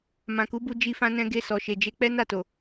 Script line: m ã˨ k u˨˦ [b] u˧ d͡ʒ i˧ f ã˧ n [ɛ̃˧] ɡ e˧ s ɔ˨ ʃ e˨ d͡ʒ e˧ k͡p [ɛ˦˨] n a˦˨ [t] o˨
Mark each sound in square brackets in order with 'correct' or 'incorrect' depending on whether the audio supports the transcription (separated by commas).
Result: correct, correct, incorrect, correct